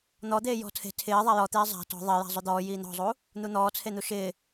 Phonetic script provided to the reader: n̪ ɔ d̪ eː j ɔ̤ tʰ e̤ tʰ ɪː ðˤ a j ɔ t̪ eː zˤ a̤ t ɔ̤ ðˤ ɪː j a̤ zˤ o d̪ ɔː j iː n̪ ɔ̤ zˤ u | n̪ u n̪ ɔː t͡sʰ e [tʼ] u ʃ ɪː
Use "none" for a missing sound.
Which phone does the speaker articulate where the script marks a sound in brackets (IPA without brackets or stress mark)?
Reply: n̪